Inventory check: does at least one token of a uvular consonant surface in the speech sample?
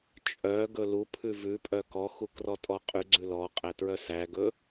yes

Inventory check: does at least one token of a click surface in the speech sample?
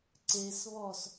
yes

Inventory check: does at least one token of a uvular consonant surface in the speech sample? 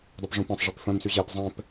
no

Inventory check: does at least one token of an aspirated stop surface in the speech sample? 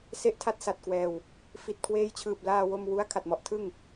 yes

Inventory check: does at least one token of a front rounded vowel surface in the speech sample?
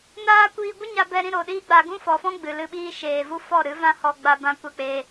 no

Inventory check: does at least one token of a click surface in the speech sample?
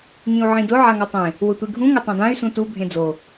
no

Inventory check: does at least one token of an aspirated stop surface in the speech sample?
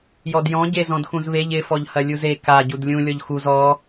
no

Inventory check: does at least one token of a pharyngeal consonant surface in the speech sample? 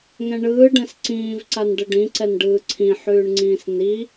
yes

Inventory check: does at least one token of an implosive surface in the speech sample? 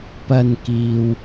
no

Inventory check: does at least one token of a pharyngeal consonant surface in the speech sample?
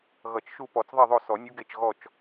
no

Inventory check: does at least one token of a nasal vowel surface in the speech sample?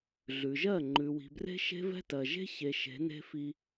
no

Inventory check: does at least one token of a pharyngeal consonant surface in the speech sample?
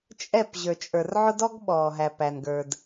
yes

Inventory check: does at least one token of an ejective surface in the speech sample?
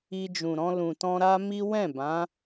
no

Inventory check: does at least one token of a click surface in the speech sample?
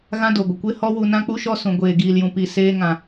no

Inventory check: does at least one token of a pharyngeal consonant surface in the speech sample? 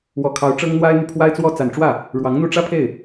no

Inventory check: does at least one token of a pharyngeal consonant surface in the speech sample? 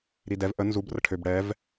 no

